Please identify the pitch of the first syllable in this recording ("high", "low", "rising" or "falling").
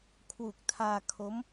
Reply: low